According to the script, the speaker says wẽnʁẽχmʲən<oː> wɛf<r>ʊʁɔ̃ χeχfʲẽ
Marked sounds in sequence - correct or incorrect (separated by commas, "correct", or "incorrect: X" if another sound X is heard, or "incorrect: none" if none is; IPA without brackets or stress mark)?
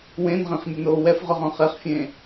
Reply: correct, incorrect: ʁ